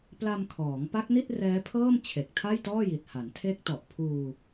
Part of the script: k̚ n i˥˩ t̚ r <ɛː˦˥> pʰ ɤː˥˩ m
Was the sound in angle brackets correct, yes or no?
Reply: yes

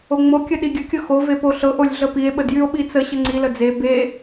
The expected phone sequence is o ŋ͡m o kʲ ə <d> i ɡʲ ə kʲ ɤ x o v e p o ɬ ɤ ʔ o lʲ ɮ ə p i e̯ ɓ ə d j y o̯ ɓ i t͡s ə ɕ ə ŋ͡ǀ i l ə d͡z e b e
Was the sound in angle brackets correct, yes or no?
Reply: no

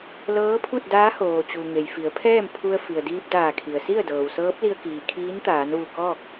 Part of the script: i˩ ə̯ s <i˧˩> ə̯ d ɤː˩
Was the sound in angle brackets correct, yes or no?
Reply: no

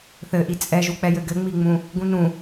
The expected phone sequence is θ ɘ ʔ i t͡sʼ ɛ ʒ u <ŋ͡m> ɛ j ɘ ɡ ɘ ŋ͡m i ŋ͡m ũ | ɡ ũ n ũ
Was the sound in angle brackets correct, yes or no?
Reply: no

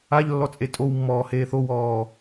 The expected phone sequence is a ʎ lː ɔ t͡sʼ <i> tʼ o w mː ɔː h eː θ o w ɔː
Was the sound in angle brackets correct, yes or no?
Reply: no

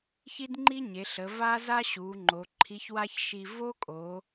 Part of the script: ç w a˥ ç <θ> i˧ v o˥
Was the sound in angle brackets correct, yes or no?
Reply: no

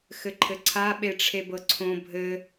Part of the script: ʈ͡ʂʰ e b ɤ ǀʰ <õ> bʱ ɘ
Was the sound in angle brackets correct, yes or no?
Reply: yes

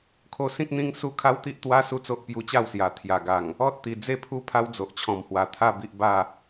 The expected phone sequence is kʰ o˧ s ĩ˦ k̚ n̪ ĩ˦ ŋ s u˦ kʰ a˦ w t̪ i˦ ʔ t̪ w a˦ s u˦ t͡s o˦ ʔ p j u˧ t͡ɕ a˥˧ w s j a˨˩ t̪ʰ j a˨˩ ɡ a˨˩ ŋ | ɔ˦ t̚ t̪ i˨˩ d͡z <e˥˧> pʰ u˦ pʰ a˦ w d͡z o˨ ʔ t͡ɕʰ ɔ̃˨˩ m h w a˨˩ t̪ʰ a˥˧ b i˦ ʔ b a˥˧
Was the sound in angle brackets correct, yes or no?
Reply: yes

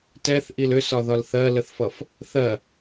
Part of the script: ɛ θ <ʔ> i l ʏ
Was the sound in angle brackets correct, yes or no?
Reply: yes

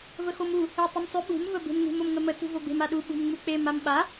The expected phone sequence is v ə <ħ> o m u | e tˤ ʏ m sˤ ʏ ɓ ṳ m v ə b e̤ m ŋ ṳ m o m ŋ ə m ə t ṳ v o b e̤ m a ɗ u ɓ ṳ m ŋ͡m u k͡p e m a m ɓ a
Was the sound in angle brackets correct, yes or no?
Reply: no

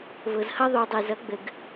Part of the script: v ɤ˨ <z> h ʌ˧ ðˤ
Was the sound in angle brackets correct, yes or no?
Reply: yes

